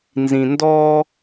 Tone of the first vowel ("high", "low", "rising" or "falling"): low